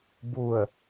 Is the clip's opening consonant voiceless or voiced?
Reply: voiced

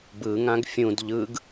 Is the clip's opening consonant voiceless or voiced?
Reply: voiced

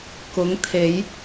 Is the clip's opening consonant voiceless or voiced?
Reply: voiceless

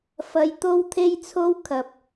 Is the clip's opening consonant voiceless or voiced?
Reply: voiceless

